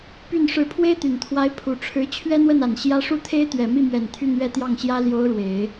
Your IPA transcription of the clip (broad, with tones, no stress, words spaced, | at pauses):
py˥˩n ʂɻ̩˧˥pʰwe˥ɪ̯t̪y˨˩nt̪ʰwa˧˥ɪ̯ pʰu˨˩ʈ͡ʂʰɻ̩˧˥ t͡ɕʰɥɛ˥n̪wə˥˩na˨˩n ɕjä˥ ʂu˥˩t̪ʰe˥ɪ̯t̪ɥɛ˨˩ mi˥˩mɥɛ˨˩n t̪ʰy˥˧nɥɛ˥˧t̪jɑ˥˩ŋɕjä˥ ljo˧˥ʊ̯ ɻwe˨˩˦ɪ̯